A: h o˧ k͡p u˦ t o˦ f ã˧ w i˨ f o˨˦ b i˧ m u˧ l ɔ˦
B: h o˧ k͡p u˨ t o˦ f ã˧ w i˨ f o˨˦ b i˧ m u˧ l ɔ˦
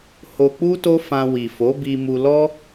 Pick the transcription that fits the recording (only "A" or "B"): A